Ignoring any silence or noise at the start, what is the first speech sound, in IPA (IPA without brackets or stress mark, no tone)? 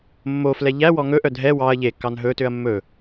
mː